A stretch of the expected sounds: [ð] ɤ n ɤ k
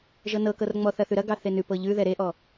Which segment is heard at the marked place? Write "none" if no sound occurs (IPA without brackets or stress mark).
ʒ